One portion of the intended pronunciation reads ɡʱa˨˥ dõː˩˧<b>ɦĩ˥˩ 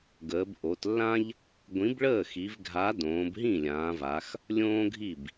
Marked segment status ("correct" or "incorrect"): correct